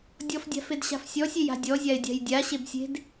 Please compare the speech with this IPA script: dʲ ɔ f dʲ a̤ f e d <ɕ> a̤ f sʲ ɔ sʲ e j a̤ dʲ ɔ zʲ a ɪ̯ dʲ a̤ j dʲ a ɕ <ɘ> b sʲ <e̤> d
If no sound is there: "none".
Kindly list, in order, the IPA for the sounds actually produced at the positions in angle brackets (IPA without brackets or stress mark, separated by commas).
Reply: ɕ, e, e̤